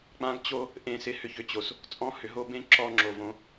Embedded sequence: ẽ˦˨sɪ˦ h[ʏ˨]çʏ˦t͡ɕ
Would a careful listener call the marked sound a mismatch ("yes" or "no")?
no